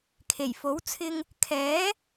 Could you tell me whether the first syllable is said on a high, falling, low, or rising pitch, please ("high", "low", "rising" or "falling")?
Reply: low